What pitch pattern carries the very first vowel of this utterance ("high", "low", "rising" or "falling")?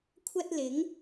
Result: high